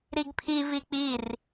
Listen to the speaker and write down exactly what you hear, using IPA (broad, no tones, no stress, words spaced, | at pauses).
ɾiɡpʰi vik͡pir